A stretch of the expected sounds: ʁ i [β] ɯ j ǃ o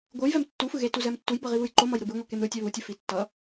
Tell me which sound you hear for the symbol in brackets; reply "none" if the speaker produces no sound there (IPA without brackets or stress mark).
β